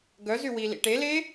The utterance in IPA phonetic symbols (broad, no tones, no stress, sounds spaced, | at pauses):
ɡ œ z y w i l ḭ ʈ e l e